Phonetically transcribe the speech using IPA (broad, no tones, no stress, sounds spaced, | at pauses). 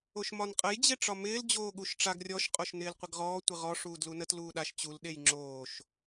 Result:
o ʃ m ɒ n qʼ ə j d͡ʑ e ʈ͡ʂ ɒ m ɪː l d͡ʑ oː ɠ u ʃ ʈ͡ʂ a ɡ rʲ ɔ ʃ qʼ o ʃ n ɪː l qʷ ɪ ɡ ʁ ɔː tʷ ɪ ʁ ɔ ʂ uː d l u n ə t l uː ɗ a ʃ t͡ɕ u l ɗ e j ŋ͡ǁ oː ʃ